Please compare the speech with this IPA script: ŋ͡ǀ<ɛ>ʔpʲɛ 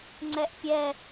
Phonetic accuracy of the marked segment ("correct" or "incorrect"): correct